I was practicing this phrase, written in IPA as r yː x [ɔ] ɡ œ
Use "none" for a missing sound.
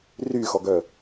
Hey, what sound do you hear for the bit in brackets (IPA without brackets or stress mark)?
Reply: ɔ